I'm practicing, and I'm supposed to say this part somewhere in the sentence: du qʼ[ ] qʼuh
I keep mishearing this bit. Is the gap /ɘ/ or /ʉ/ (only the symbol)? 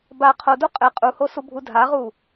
ɘ